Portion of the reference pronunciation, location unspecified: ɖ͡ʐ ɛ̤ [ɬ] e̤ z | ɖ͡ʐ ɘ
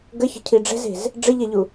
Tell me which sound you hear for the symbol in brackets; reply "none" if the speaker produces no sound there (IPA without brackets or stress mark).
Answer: z